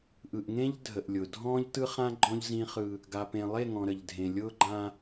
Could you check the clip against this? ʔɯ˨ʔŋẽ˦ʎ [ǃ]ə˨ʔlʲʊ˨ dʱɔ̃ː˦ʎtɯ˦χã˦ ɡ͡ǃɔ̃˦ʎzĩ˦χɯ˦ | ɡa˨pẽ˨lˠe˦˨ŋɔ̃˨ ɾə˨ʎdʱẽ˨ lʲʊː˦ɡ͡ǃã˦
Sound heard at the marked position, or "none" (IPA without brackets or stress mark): dʱ